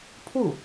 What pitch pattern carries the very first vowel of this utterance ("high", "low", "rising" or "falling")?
falling